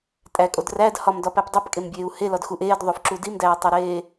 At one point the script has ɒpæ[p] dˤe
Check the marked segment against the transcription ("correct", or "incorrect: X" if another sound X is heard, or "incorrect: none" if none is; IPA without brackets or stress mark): correct